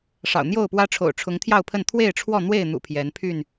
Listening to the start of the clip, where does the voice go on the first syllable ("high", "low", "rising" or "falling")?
low